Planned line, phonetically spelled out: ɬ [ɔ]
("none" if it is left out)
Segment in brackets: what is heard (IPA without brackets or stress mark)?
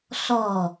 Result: ɔ